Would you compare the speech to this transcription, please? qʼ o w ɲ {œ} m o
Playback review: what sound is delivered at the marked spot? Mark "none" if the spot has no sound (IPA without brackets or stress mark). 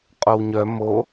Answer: œ